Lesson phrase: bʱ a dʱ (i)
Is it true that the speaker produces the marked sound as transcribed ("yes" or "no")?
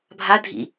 no